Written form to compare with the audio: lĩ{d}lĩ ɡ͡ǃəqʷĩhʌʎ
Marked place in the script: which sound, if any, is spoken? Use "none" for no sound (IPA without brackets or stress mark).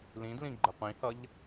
d